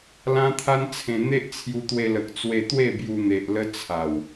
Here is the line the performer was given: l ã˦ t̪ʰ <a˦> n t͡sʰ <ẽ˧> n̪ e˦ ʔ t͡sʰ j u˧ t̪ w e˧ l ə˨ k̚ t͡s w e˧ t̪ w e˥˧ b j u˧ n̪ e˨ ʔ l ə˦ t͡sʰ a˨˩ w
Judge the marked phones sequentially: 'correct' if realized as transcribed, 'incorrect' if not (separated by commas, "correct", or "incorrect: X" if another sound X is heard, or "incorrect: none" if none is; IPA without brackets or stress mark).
correct, correct